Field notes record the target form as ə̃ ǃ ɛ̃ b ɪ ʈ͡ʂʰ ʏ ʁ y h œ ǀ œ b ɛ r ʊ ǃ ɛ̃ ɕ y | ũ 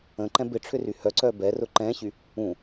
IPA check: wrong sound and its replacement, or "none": ʁ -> r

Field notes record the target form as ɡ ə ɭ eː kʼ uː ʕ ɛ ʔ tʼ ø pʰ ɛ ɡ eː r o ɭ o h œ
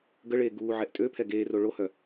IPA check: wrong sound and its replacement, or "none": kʼ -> ɡ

